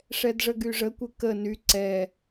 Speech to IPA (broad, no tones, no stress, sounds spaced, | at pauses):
ʂ ɛ d ʐ ə ɡ y ʐ ə kʷ ɪ k ə n y ǀ ɛ